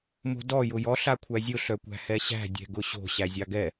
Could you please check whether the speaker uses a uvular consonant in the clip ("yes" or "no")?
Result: no